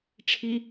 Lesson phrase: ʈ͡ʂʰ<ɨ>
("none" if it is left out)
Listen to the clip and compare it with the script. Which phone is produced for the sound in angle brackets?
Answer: i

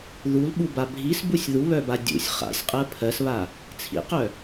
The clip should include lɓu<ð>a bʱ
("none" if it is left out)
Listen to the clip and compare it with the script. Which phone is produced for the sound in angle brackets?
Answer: b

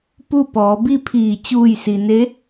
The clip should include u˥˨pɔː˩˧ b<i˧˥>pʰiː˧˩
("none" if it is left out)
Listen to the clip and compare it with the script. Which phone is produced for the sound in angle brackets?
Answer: i˥˨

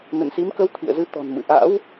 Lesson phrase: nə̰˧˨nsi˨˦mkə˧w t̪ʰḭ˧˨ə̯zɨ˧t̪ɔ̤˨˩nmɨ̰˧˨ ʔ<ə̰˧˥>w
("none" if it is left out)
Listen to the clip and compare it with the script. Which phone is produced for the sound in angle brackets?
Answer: a̰˧˥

